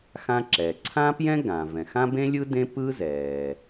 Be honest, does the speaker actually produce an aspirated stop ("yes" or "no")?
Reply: yes